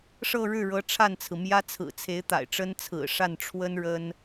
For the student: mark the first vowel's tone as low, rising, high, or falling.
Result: falling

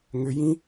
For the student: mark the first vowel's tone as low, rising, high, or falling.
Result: low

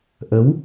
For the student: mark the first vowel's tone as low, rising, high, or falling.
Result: rising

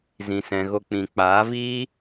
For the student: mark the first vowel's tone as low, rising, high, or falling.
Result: low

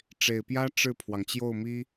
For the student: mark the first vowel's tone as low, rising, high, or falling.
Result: low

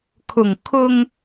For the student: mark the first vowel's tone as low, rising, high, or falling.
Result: low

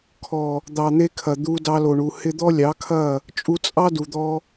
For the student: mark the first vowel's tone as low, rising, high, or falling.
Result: low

